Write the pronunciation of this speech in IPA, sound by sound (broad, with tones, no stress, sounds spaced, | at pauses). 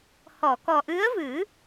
h ɔ˨˩˨ k ɔ˨˩ ʔ ɨ˧˥ ə̯ v ɨ˨˩˦